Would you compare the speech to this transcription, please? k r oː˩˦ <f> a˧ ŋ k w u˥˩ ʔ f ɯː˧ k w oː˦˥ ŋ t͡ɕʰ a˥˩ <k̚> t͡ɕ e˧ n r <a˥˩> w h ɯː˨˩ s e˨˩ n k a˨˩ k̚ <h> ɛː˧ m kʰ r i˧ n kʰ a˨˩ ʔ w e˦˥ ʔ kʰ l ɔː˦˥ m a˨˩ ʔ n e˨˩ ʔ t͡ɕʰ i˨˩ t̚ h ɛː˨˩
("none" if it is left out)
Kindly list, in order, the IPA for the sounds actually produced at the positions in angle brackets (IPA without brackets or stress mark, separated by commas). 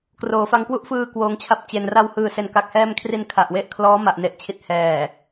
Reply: f, p̚, a˧, h